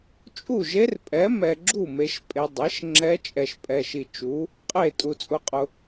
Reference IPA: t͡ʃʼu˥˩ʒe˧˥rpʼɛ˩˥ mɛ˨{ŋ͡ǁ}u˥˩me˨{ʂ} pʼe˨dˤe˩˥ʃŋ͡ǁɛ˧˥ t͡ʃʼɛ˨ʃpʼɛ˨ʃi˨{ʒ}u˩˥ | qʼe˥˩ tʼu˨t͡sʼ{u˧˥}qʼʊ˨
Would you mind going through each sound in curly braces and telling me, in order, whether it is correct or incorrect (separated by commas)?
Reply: incorrect, incorrect, incorrect, incorrect